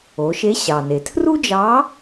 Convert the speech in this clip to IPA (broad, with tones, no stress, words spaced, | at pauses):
o˩˧ʃe˧˥ɕɑ˩ne˩ tʰru˥d͡ʒɑ˧˥